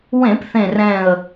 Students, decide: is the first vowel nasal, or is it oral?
nasal